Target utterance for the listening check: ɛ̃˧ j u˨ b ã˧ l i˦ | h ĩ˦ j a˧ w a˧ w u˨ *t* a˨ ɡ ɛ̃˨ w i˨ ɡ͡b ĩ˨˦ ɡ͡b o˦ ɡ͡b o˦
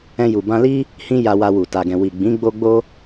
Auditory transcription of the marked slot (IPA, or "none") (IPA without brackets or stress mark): t